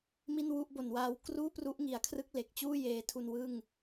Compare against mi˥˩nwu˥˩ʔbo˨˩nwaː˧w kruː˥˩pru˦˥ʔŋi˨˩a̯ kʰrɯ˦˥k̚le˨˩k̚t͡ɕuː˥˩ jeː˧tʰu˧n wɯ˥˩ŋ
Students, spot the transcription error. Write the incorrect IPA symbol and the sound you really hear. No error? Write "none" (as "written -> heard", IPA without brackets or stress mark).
none